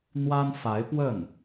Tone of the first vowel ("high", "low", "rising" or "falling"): high